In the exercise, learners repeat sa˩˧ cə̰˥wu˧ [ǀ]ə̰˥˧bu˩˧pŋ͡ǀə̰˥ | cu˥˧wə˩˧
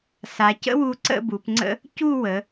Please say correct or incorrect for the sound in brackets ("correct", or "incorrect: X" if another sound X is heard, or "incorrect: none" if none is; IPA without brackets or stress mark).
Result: correct